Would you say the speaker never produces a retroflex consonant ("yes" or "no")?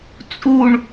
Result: no